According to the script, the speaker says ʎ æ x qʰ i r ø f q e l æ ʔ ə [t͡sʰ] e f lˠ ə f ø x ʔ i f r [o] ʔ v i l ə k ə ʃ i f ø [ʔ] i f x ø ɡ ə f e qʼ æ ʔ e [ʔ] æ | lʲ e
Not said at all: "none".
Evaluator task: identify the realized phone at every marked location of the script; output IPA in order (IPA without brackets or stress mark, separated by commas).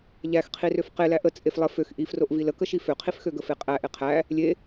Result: t͡sʼ, o, qʰ, qʰ